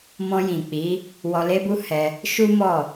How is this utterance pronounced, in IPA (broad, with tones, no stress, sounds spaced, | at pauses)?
m ɔ̃˧ j ĩ˨ k͡p i˨˦ | w ɔ˧ l e˦ b u˦ h ɛ˧ | ʃ u˦ m ɔ˦˨